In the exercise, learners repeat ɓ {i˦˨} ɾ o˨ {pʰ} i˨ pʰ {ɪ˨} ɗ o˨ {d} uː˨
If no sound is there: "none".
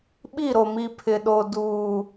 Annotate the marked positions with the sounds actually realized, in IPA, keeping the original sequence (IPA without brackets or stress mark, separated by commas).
i˦˨, m, ɪ˨, d